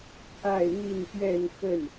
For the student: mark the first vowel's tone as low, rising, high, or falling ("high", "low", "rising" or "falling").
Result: falling